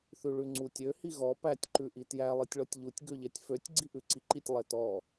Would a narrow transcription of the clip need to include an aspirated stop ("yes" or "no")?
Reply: no